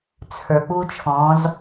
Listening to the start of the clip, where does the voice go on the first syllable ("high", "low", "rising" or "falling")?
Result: low